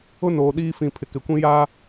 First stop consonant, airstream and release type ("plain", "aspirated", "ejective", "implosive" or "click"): implosive